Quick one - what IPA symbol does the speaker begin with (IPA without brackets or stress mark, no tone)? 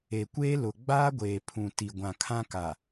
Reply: e